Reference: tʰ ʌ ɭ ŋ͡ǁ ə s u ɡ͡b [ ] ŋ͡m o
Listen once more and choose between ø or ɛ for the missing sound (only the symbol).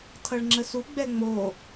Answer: ɛ